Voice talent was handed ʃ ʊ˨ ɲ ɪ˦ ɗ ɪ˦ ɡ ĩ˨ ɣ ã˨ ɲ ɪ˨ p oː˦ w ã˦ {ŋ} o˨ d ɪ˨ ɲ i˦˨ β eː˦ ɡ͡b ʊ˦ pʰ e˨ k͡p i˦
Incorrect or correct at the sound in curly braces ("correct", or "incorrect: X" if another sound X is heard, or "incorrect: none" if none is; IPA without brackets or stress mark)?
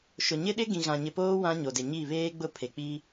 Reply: incorrect: ɲ